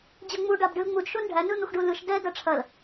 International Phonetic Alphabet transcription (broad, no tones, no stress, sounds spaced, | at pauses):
d͡ʑ ɐ ŋ͡m u ɖ a b ɖ ɯ l ŋ͡m u d ʃ o n ɖʱ æ n ɯ n̪ u x ɖ u l ɯ ʃ d ɛ d ɐ ʈ͡ʂʰ ɐ l